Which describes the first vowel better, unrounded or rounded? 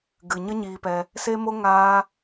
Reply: unrounded